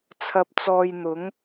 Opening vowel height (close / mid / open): open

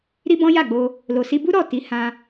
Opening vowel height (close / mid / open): close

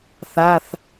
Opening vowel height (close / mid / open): open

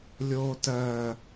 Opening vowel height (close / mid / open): mid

